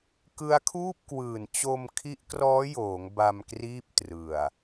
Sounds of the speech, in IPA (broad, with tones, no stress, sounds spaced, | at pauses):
k ɯ˦˥ a̯ kʰ uː˥˩ p̚ k w ɯː˨˩ n t͡ɕ o˧ m kʰ i˦˥ ʔ k r ɔː˦˥ j oː˩˦ ŋ b a˧ m k r iː˥˩ p̚ t r ɯ˨˩ a̯